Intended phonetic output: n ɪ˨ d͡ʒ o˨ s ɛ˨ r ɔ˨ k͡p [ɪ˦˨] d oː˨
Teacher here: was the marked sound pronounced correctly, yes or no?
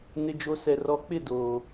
yes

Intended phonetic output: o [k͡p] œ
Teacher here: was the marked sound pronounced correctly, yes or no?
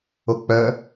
yes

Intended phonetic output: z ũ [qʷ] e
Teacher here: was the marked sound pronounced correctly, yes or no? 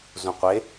yes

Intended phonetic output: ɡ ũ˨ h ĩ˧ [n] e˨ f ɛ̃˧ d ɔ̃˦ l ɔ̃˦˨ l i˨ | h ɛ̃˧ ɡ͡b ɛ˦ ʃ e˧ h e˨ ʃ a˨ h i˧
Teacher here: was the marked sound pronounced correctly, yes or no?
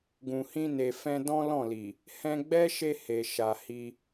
yes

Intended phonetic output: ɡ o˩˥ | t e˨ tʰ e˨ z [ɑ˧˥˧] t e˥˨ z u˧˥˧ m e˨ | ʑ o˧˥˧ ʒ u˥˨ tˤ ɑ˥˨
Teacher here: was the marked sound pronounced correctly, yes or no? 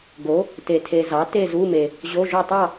no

